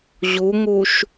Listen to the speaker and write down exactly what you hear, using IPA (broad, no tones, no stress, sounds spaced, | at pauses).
ʑ u ŋ u ʃ